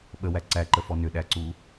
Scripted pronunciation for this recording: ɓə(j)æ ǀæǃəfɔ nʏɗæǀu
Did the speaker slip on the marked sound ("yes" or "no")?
yes